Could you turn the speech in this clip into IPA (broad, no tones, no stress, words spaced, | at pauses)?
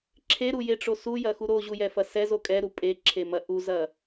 ǁʰeɾujeʈ͡ʂo sujɐxu ɾoʑujɛfɐ sɛzo kʼɛɾu pʼeǁʰemɐ ʔuzɐ